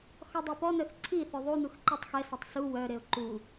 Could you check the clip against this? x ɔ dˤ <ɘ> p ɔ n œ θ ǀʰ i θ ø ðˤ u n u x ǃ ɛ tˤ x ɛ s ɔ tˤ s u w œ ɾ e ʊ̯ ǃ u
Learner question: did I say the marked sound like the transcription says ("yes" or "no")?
no